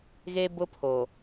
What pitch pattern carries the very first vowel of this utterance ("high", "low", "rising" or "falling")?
high